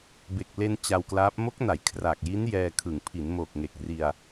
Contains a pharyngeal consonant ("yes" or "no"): no